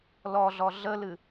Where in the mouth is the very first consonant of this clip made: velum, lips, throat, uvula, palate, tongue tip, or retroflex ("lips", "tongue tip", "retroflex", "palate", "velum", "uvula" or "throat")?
tongue tip